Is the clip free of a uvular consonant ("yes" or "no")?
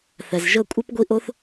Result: yes